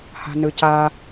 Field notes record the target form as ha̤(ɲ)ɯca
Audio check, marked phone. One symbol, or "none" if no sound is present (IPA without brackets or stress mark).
n